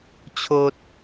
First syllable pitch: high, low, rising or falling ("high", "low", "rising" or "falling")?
high